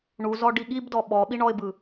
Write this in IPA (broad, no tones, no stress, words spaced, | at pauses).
ɳuzɔɖi ɠibdɔ ɓɔɓi ɳɔɪ̯bɯ